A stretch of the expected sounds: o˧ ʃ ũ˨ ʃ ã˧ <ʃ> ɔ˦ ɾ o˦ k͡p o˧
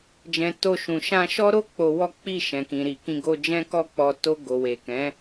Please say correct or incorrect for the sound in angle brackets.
correct